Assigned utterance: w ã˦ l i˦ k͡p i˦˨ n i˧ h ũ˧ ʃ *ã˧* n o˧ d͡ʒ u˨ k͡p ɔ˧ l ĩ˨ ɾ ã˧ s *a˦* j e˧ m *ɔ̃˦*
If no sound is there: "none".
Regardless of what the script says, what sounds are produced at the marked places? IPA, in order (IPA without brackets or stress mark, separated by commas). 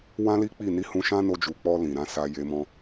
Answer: ã˦, a˧, ɔ̃˧